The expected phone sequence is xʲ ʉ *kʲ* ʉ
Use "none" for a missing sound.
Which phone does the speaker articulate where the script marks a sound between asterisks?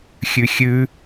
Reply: xʲ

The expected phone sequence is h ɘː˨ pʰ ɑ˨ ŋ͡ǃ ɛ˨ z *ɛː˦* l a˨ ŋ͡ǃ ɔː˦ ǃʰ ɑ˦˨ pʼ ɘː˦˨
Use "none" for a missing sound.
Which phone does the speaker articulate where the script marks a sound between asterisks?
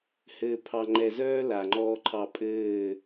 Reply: œː˦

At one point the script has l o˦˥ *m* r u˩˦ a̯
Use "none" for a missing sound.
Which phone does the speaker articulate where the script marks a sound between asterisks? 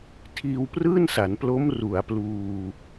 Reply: m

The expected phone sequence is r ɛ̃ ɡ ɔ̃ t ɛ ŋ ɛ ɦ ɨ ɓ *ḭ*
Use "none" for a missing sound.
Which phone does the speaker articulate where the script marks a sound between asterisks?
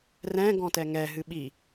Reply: i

